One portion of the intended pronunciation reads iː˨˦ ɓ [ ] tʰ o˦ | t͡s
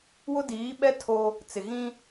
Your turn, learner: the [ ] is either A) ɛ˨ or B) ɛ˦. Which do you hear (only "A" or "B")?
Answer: B